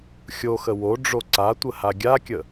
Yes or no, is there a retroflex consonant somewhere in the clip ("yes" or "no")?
yes